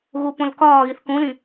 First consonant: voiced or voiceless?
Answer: voiced